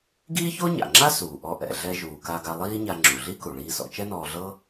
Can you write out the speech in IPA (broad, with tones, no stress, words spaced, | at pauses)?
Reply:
ɡiː˥ço˥ɲa̰˩ŋ͡ǁa˥ suː˩ʔɔ˧ʔɛ̰˩ ɮɛ˧ʒuː˩ ka˧ɡa˧ lˠiː˥ɲa˧ ŋ͡ǁu˩ɮi˥ku˩ɭiː˧ sɔ̰˧t͡ʃɛ˥nɔː˧ɮɤ˥